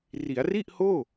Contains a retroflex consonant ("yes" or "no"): no